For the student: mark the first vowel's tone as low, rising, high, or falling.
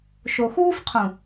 low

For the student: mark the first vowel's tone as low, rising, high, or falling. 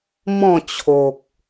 falling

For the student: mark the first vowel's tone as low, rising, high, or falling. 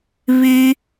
low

